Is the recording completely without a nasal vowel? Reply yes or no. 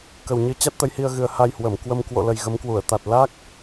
yes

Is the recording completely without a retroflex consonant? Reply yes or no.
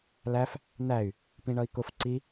no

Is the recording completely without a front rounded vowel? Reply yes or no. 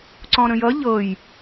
yes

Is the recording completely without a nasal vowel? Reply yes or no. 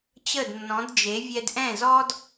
no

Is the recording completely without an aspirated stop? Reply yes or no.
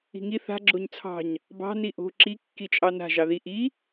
no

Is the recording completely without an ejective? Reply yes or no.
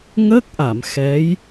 yes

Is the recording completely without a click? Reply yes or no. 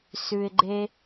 no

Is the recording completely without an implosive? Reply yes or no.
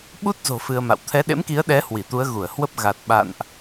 no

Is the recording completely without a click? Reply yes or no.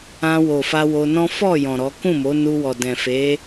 yes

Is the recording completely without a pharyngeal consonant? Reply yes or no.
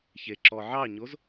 no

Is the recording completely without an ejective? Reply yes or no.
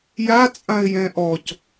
no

